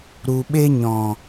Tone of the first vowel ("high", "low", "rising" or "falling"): low